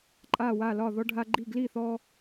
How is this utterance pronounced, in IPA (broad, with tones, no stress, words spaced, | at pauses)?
ǃʼa˥˨wa˥˨lɒ˥˨ ðɔ˦ɖʱa˦ɡ͡ǃi˥˨ ɡli˥˨θɔ˦